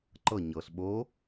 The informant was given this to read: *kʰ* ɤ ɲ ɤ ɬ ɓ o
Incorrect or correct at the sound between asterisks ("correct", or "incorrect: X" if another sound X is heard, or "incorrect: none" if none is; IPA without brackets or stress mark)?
incorrect: ǃ